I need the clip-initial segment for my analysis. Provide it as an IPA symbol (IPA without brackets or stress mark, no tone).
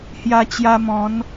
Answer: h